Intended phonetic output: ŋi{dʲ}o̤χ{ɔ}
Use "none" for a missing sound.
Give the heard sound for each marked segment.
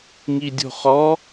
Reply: dʲ, ɔ

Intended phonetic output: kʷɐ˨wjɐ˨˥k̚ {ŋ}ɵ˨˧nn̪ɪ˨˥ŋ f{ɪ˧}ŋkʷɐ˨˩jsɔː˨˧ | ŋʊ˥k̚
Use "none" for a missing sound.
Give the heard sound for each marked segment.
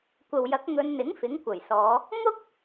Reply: ŋ, ɪ˨˥

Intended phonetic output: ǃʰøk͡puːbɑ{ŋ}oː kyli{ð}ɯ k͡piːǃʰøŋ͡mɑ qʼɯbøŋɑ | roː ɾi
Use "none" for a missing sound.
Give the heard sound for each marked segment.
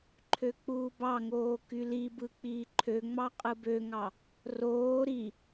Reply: ŋ, b

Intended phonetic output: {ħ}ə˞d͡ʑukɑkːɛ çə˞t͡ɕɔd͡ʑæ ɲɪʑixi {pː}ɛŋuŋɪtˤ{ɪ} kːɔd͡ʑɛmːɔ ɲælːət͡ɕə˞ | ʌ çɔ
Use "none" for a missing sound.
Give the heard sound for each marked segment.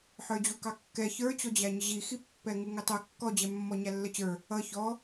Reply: ħ, pː, ə

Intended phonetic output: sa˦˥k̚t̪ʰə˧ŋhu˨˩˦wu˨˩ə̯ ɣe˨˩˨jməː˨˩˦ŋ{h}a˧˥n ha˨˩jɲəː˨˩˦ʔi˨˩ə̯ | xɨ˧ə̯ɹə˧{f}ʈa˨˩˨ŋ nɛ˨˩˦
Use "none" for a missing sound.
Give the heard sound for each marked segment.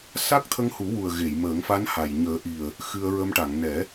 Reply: f, m

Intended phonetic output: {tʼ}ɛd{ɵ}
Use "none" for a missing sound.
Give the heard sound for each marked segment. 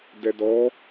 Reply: d, ɔ

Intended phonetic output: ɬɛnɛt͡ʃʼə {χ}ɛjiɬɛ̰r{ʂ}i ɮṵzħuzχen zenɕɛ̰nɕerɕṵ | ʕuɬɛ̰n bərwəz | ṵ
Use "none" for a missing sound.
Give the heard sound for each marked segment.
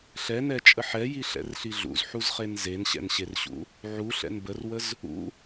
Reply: ħ, ɬ

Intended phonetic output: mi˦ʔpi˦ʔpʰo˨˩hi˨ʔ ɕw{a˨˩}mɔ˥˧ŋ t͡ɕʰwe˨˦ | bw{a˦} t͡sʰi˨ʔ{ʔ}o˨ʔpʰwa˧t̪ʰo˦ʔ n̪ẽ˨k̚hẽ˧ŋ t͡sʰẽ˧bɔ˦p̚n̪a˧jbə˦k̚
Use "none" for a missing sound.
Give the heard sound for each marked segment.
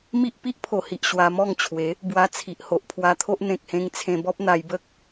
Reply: a˧, a˧, h

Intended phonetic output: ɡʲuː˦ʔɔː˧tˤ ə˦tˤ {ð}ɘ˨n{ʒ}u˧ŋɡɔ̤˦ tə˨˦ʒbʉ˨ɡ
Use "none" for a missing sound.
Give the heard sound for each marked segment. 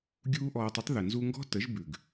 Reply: ð, z

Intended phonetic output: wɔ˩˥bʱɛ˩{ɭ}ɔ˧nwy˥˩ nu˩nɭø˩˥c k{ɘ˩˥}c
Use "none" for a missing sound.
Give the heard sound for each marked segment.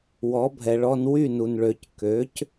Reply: ɭ, ø˩˥

